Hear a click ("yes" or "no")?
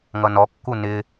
no